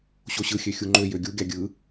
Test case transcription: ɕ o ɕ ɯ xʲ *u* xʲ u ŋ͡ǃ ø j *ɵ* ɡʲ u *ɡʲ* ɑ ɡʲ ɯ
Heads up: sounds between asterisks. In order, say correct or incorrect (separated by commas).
incorrect, incorrect, correct